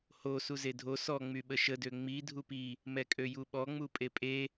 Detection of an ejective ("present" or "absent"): present